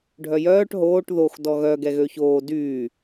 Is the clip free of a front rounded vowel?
no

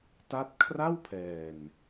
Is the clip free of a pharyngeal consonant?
yes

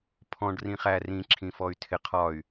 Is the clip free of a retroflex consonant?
no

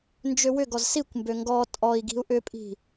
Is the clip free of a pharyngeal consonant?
yes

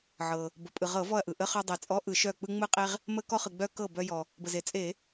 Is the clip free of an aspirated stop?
yes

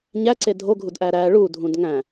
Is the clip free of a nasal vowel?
no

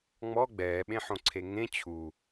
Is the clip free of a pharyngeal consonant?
no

